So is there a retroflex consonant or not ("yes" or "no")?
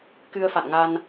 no